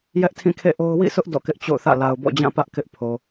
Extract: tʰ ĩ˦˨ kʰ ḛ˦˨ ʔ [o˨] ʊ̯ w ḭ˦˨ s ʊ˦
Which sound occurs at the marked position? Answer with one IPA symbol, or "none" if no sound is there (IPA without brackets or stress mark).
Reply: o˦